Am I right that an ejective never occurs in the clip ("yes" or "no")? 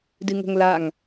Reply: yes